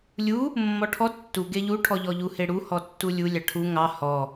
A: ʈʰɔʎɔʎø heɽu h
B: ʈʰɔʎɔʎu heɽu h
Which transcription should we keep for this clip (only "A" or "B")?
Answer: B